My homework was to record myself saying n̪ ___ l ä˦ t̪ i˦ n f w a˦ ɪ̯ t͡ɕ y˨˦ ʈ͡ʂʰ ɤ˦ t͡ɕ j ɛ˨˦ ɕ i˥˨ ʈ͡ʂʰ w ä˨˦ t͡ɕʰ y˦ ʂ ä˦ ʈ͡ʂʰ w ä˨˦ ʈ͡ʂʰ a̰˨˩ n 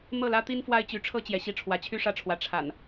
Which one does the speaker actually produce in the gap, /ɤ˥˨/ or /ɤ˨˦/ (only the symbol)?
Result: ɤ˥˨